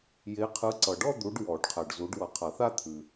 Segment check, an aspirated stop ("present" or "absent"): present